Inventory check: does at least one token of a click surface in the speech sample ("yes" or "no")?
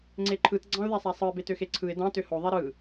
yes